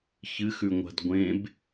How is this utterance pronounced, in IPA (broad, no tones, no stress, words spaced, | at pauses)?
çɨxʉŋʷa̤d ɡʷẽb